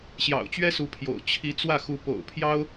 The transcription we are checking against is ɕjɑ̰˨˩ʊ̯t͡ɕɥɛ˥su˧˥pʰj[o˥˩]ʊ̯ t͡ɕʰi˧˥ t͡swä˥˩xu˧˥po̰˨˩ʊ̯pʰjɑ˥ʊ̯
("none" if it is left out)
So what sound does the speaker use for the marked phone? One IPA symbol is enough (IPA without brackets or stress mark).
o̰˨˩